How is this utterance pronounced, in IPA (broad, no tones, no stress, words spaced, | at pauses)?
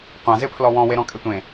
qʷãzɪpʰlɔ wɔ̃weɾɔ̃kʼe tʷẽ